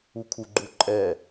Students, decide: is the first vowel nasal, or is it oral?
oral